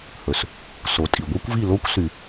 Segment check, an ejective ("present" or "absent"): present